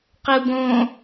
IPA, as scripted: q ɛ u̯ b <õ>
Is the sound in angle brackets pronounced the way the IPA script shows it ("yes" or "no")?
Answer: yes